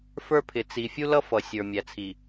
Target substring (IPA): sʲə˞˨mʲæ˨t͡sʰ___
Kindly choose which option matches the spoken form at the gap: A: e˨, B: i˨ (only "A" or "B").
B